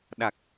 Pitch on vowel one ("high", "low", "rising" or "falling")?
low